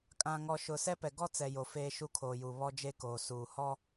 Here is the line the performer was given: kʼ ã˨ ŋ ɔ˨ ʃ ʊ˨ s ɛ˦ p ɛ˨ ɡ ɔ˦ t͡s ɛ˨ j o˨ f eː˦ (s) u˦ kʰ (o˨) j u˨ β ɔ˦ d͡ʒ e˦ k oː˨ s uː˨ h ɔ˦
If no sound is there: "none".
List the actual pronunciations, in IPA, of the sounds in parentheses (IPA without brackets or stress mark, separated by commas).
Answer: ʃ, oː˨